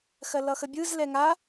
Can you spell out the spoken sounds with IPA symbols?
xɜlʌxəbʲɯz lɛŋa

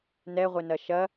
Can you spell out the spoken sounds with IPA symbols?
nɛʁʷɪnɐ ʃɐ

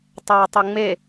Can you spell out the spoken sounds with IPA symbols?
tˤɛːtˤoŋ͡me

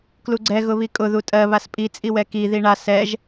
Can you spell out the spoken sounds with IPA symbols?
kluɡ͡ǀɛ ɣʊβikʼʊ ðutʼɜ βaspʼi t͡sʼiwɛki ðiɳa sɛʒ

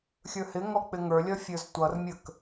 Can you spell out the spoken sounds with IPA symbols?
xʲə˞hɪŋɔ k͡pɪŋə˞lʲʌ fʲə˞ztʷʌrmʲək

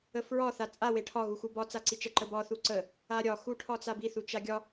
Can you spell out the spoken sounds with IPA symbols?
əfɹɒ θat͡sʼa weʈʰɒ ɣuxubɒ t͡saǀit͡ʃə ǃəbɒ θuǀə | aɾʲɒ xuʈʰɒt͡sabi θut͡ʃaɡʲɒ

